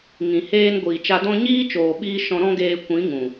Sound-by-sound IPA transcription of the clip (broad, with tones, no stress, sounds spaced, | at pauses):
ŋ ĩ˨ h eː˧ n ɡʷ iː˨ t͡ʃ a˧ d ɔ̃˦ ɲ iː˦ t͡ʃ oː˨ ɓ iː˧ ʃ ɔ̃˧ ɾ ɔ̃˦ ɡ eː˧ kʷ ĩ˨˦ ŋ ũ˨